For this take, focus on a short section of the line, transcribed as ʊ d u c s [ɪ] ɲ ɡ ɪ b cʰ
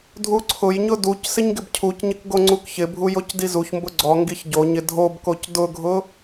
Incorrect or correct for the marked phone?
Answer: correct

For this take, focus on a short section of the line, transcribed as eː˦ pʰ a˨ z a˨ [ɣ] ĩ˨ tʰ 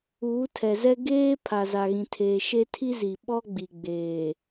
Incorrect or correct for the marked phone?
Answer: correct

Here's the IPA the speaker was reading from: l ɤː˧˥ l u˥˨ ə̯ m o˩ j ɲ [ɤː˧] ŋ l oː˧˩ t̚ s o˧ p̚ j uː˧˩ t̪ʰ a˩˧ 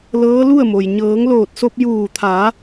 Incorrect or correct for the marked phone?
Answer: incorrect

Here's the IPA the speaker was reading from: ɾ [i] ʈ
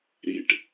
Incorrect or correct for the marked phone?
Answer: incorrect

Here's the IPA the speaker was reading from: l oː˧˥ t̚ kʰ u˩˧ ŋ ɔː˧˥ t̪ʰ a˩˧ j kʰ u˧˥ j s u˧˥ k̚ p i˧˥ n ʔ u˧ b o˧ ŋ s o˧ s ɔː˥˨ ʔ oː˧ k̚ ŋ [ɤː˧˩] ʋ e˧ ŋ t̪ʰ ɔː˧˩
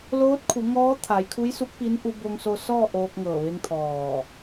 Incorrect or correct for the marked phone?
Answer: correct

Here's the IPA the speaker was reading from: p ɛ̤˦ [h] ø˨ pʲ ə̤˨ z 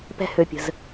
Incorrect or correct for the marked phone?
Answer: correct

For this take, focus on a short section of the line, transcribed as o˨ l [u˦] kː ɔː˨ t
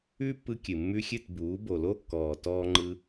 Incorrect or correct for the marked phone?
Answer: incorrect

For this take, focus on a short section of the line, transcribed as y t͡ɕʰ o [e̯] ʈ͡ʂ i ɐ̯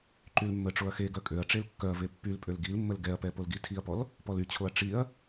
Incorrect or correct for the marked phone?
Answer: incorrect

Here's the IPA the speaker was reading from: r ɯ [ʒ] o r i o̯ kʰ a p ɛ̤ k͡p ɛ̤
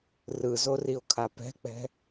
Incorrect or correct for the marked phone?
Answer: incorrect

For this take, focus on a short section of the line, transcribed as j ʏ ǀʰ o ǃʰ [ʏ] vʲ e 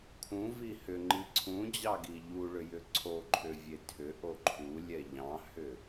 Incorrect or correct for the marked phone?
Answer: correct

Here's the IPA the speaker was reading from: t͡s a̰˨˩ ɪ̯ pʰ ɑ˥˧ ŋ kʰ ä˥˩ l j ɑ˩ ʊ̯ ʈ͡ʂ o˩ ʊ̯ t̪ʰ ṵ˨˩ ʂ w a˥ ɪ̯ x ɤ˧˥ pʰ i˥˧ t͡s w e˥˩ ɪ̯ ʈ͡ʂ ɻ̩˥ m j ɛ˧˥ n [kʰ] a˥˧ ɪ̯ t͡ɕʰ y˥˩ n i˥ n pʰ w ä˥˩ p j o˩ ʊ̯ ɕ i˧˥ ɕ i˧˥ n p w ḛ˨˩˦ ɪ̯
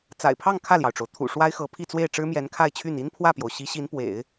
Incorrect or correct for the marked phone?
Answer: correct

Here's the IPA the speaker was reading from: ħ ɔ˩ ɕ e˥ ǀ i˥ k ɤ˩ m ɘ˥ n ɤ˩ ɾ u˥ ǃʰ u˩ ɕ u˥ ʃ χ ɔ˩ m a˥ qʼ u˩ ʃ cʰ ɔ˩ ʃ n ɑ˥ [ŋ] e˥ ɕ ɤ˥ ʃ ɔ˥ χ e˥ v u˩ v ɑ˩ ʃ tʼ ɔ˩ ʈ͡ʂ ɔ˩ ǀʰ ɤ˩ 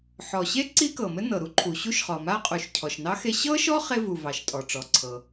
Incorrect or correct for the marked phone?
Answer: incorrect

